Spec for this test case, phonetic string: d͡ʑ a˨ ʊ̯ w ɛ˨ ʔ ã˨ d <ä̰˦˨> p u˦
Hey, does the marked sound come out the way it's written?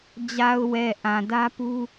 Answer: no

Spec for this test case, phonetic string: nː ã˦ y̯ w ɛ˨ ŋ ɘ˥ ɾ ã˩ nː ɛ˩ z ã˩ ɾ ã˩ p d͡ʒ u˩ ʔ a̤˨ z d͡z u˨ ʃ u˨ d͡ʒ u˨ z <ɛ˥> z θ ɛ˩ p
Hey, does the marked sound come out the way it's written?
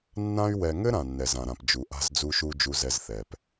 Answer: no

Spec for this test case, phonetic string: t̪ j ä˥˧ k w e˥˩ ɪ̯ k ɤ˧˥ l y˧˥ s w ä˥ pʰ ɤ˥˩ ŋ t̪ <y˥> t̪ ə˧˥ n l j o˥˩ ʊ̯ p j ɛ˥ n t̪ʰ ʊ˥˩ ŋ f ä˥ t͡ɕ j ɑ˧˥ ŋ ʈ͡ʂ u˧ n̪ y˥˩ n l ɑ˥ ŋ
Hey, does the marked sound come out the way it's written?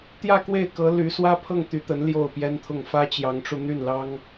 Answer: no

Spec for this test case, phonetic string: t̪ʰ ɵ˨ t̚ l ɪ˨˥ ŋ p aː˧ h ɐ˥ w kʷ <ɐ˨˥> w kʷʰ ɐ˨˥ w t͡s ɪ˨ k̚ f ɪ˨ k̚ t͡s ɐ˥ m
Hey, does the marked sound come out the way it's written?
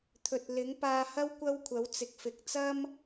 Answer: no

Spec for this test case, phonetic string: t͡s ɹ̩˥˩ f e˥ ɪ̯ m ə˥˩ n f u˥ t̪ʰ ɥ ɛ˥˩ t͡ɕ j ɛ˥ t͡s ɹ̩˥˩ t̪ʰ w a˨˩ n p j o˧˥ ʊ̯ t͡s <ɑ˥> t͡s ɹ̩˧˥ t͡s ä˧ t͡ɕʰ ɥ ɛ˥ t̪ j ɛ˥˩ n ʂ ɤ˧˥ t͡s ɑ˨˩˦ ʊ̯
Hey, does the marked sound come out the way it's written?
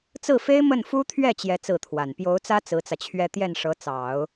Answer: no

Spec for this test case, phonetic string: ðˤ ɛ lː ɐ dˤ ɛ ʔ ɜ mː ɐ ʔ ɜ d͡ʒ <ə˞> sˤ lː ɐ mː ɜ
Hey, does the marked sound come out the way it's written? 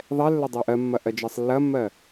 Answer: no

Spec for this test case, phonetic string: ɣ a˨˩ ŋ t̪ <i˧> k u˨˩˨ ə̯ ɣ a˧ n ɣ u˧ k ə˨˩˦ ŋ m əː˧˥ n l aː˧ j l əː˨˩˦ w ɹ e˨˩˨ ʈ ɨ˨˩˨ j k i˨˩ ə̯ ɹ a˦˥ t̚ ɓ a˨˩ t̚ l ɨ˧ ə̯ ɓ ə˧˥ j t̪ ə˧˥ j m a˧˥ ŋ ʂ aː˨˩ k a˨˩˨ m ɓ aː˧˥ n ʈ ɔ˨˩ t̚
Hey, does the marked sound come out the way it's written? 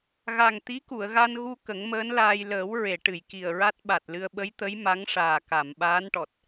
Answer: no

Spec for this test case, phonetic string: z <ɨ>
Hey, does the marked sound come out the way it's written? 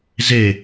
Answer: no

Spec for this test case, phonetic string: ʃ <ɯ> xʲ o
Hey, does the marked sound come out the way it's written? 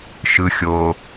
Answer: yes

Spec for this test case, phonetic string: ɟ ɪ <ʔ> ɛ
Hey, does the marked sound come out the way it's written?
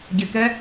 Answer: no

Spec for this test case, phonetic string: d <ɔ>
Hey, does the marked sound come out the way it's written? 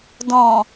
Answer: no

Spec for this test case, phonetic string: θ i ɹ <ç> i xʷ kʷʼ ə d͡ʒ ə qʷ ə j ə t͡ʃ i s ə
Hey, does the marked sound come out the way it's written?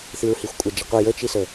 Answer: no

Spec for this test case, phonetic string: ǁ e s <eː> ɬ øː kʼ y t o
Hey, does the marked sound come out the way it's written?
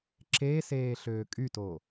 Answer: yes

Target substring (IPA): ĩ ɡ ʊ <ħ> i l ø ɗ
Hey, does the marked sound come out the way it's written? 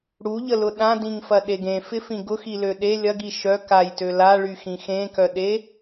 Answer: no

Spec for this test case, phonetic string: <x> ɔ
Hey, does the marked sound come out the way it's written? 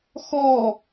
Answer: yes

